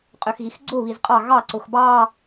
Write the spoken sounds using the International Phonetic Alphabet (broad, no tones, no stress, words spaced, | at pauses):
qʼøxɣixɡ͡ǀʊ βizqʼɑ ɣɑ ǀʊxbɑ